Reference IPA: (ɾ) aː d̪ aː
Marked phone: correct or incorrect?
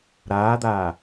correct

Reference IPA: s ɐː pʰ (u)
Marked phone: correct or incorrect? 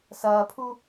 correct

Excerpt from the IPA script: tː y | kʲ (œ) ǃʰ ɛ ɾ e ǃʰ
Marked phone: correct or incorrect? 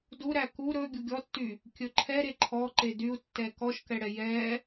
incorrect: ɵ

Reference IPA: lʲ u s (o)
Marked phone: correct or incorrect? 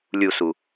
incorrect: u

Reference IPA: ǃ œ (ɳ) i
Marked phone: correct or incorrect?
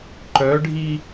incorrect: ɖʱ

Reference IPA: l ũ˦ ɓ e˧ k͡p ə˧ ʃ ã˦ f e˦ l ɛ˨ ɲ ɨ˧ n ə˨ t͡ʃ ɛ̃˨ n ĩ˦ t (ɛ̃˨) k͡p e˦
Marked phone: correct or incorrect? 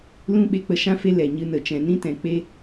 correct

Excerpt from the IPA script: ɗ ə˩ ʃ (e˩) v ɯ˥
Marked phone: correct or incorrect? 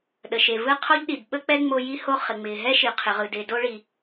correct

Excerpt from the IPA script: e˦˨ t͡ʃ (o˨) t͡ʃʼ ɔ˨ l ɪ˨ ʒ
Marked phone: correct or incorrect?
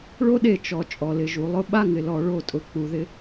incorrect: ɔ˨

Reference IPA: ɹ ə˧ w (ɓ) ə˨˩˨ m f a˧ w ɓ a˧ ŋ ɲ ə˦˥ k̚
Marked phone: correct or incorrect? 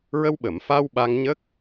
correct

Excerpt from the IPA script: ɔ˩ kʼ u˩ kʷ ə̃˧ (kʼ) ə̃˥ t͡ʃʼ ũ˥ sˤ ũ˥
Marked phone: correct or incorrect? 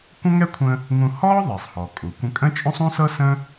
correct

